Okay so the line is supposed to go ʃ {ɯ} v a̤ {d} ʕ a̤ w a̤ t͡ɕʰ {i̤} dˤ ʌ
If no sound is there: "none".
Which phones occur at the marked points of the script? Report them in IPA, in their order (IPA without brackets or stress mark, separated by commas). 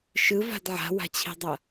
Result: ɯ, d, i̤